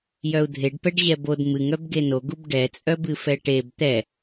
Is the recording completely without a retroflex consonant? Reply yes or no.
no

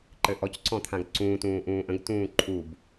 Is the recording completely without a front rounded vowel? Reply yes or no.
yes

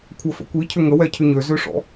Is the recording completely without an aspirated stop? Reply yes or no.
no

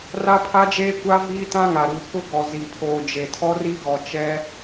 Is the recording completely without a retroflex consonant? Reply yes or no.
yes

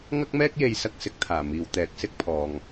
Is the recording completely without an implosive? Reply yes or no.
yes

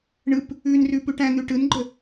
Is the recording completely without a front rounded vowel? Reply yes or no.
yes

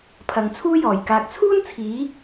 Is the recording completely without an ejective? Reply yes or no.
yes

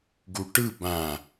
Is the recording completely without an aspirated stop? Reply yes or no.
yes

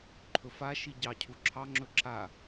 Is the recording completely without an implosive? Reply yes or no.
yes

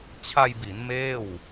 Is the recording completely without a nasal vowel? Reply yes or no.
yes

